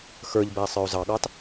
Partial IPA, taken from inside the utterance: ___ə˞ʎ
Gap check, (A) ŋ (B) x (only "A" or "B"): B